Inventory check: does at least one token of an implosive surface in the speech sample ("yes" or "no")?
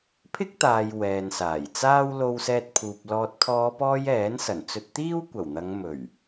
no